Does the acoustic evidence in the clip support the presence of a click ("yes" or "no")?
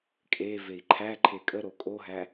yes